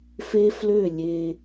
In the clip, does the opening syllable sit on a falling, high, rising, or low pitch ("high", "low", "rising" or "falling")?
high